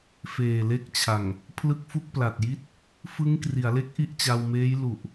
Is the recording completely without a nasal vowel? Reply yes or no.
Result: yes